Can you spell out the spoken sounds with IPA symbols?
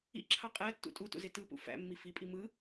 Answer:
ḭ ǁʰ ɑ qʼ æ tː ṵ tʼ u t ṵ z e t ɯ p ṵ f æ̰ mː i f i pʼ i m ɯ

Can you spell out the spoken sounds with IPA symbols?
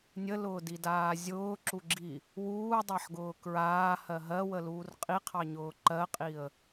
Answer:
nʲ ə l ʊː d i d aː zʲ ʊː ǁ u ɡ͡ǁ i | w uː dˤ a ħ ɡ ʊː k ɹ aː h ɜ ɦ ɜ w ə l uː r qʼ i qʰ ɑ ɲ ʊː ǃ ɜ qʼ i ə̯

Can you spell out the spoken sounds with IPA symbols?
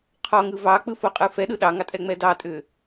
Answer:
qʰ ɔ ŋ ɯ v ɑ k͡p ɯ f o qʼ ɯ f ɛ ɗ ɯ ɗ ɑ ŋ ɑ tʼ ɛ ŋ͡m ɛ d ɑ tʼ ʏ

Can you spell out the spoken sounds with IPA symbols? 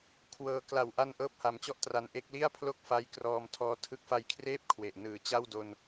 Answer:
kʰ w ɤː˧ k l a˨˩ w ʔ a˧ n ʔ ɤː˥˩ p̚ h a˧ m t͡ɕ ɔ˥˩ ʔ t r a˧ n ʔ e˦˥ k̚ l i˥˩ a̯ pʰ l o˥˩ k̚ f a˦˥ j k r ɔː˧ m tʰ ɔː˦˥ tʰ ɯ˦˥ k̚ f a˧ j kʰ r eː˥˩ p̚ kʰ w e˨˩ ʔ n ɯː˨˩ t͡ɕ a˥˩ w d o˧ n

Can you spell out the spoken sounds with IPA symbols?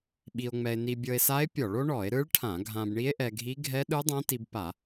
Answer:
ɓ i˧ o̯ ŋ͡m ɛ˧ e̯ n i˧ bʲ ɤ˧ e̯ s a˦˥ e̯ pʲ ɔ˧˩˧ ɭ o˦˥ ɳ ɔ˧˩˧ e̯ ɾ ɯ˦˥ ɭ ʈʰ ã˧˩˧ ɡʱ ã˧ b ɳ i˦˥ e̯ ʔ ɛ˧ ɡʱ i˦˥ ɡʱ ɛ˦˥ ɗ ɯ˦˥ dˤ ã˦˥ t i˧ b p a˧˩˧

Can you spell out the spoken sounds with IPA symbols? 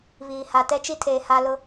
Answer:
β iː˨ h a˨ t ɛ˦ t͡ʃ i˦ tʰ eː˨ h a˦ l ʊ˦

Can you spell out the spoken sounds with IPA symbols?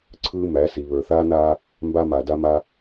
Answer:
ǀʰ ɯː˦ m æ˨˦ s i˨ β ə˞˨ θ aː˦ n aː˦ | m b a˦ m a˨ d a˦ m a˦

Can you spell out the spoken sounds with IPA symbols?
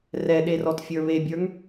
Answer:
r ɛ ɗ e r ɔ t fʲ ə˞ β e bʲ ə˞ ŋ

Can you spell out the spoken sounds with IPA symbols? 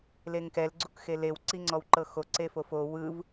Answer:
l e ŋ k ɛ l ɡ͡ǀ u k x e l e w ǀ i ŋ͡ǀ ɔ w ǃ ɤ x o ǀ e f o f o w ɯ v

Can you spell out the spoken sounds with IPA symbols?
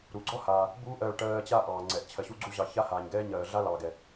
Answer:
ɾ u˩ ɡ͡ǀ ɔ˥ h aː˩ | b uː˧ ʔ ɜː˧ ɭ ʈ ɜː˧ t͡ɕ a˥ ʔ ɑː˩ ŋ͡ǀ ɛ˩ ʔ t͡ɕʰ ɜ˩ ɕ u˧ ɡ͡ǀ u˧ ʑ ɑ˩ ç a˥ h aː˩ ɲ ɡ ɛː˥ ɲ ɜː˩ ɮ a˥ l ɑː˩ ɡ ɛ˩

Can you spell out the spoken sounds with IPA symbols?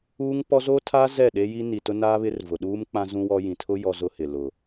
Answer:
uː˦ ŋ p ɔ˦ z oː˦ tʰ aː˦ z ɛ˦˨ ɗ e˦ j i˦ n i˨ t ʊ˦ n aː˦ β ɪ˦ r v ʊ˨ ɗ uː˦ m k͡p ã˦ z ũ˦ w ɔ˦ j ĩ˨ tʰ ʊ˦ j ɔ˦ z ʊ˦ h ɪ˨ l ʊ˨

